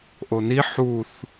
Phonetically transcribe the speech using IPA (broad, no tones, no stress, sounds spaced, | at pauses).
ʔ o n i ħ u θ